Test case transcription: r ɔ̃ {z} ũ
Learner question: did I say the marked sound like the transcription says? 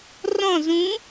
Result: yes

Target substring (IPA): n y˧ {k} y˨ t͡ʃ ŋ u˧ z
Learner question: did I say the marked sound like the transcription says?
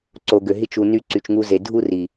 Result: no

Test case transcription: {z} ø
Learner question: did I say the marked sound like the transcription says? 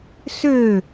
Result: no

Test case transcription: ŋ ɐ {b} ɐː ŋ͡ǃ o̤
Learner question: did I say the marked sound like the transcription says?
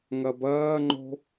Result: yes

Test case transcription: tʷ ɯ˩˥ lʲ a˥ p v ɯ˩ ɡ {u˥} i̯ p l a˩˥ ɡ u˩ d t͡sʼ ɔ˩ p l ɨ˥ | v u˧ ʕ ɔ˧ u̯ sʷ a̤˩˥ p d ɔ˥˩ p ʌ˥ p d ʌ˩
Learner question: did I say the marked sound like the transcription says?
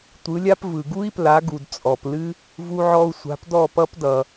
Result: yes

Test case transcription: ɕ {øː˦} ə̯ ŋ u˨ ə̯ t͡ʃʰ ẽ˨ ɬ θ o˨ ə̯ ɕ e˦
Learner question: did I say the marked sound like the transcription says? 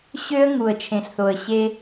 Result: no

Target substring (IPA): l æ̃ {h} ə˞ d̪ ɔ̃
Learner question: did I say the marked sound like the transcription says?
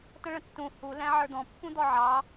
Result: no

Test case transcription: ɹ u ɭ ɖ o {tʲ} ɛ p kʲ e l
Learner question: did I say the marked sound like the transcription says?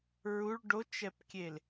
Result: no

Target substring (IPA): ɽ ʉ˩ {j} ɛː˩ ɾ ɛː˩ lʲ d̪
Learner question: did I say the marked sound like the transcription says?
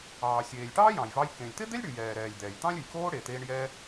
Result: yes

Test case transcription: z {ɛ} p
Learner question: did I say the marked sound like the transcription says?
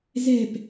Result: yes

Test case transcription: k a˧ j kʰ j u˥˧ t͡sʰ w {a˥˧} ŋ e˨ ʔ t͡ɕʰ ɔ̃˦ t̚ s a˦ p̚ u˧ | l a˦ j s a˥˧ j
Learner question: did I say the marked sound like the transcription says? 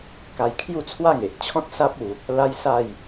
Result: yes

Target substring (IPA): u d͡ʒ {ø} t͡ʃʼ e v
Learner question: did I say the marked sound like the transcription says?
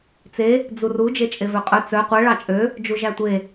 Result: no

